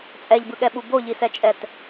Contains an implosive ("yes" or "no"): yes